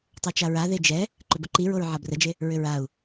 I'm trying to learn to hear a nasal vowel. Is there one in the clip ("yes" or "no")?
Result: no